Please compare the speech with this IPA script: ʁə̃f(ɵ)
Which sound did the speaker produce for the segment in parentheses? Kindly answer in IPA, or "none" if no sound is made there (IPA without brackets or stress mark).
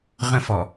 ɔ